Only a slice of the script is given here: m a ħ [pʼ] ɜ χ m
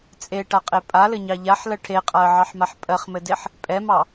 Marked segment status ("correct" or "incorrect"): correct